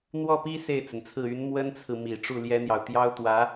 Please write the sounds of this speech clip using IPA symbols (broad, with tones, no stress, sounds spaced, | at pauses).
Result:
n̪ w ɔ˥˩ p i˥ s e˥˩ ɪ̯ t͡s ə˩ n t͡sʰ ɹ̩˥˩ y˧˥ n m w ə˥ n t͡sʰ ɹ̩˨ m i˨˩ ʈ͡ʂ u˥˩ l j ɛ˥ n̪ j ɑ˨ ʊ̯ t̪ j ɑ˥ ʊ̯ t̪ w ä˧˥